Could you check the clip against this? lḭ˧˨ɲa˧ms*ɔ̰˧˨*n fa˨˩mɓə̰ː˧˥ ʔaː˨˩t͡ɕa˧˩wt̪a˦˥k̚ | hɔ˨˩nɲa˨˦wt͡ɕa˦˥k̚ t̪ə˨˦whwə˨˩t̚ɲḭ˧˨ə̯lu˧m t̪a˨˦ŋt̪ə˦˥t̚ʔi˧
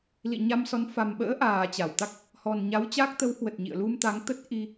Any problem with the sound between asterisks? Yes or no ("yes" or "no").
yes